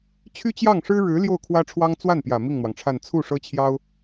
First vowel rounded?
yes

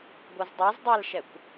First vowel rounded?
no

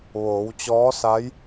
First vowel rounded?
yes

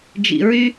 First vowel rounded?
no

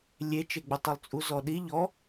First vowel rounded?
no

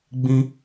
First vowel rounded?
no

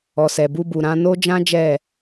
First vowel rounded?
yes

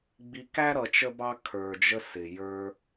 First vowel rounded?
no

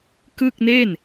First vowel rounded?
no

